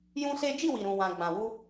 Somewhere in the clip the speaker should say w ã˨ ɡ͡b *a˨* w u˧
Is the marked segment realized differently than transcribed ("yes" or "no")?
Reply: yes